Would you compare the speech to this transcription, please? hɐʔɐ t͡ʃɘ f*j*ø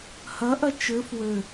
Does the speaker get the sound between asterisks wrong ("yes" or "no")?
yes